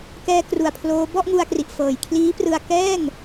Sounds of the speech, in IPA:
k ɛː˧ k r u˧ a̯ pʰ l oː˦˥ b ɔ˥˩ ʔ ŋ u˧ a̯ k r i˨˩ ʔ f ɤː˨˩ j kʰ l iː˦˥ p r ɯ˧ a̯ k ɛː˥˩ ŋ

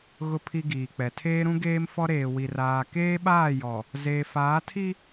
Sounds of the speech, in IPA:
ɣ ʊ˨ pʰ i˨ ɡ iː˨ k͡p ɛ˨ tʰ eː˦ ɾ ũ˦ ɡ eː˦ m f ɔ˦ ɾ eː˨ w i˨ r aː˨ k eː˦ ɓ aː˦˨ j ɔ˨ | z eː˨ f aː˨˦ tʰ i˦

